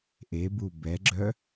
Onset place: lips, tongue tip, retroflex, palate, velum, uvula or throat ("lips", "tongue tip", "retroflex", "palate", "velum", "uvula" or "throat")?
throat